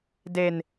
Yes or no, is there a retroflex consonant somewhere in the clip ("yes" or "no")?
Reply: no